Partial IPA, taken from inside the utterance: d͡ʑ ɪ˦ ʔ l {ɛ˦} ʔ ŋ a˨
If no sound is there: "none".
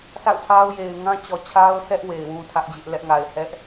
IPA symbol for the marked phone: ɛ˦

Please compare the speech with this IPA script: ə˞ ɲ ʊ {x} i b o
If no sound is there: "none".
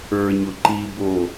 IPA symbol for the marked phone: ǃ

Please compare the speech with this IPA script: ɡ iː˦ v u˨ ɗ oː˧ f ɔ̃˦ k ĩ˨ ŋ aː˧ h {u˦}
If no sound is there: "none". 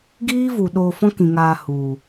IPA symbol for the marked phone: u˨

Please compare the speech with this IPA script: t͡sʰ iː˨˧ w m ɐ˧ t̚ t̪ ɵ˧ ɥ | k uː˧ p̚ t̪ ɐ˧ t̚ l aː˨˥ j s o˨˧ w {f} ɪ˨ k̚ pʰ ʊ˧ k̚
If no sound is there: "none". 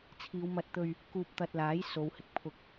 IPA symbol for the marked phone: h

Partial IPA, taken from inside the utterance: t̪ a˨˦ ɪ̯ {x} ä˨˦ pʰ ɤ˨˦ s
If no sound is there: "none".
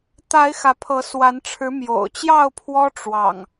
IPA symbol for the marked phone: x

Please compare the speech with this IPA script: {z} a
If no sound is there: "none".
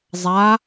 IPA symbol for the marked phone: zˤ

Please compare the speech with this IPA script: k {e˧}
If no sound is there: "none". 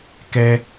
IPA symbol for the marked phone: ɛ˧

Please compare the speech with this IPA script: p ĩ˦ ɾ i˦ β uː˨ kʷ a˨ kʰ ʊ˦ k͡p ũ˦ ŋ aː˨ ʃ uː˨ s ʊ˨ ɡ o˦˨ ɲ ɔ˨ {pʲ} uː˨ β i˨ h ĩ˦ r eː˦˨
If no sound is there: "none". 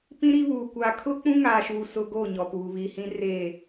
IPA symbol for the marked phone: p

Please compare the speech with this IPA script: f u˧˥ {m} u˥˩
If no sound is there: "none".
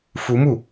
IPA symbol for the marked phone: m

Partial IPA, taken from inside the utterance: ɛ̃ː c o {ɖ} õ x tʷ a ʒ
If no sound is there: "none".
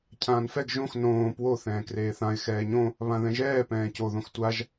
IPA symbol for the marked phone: ð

